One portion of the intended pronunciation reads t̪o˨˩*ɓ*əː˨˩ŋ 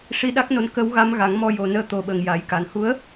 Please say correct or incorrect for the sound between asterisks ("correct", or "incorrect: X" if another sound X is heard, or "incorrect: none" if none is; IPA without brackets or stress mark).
correct